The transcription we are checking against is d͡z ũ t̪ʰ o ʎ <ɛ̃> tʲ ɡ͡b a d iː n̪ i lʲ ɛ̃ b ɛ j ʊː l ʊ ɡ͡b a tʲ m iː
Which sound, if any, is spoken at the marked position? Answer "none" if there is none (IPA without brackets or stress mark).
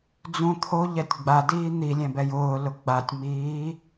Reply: ɛ